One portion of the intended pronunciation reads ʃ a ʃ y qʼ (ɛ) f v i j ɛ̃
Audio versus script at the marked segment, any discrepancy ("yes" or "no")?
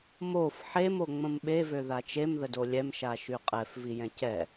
no